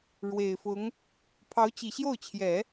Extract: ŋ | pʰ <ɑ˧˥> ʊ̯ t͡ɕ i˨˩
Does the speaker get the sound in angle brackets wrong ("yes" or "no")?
no